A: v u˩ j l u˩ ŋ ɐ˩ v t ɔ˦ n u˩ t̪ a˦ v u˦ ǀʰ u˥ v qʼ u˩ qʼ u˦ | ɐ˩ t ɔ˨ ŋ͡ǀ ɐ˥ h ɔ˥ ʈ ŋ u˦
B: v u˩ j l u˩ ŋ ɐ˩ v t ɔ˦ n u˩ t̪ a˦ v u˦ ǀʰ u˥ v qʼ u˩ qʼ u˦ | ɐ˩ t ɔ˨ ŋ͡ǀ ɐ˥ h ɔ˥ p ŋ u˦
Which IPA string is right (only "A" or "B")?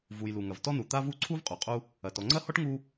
A